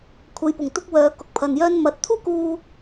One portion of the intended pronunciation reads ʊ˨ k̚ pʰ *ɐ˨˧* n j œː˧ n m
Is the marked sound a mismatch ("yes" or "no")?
yes